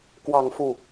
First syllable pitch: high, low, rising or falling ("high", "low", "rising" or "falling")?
falling